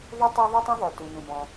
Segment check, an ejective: absent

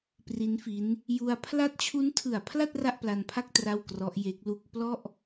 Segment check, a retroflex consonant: absent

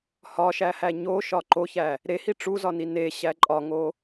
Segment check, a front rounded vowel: absent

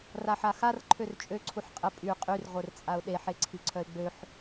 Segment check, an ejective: present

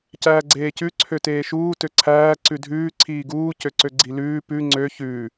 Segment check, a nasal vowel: absent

